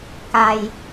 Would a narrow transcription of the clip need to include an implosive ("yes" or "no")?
no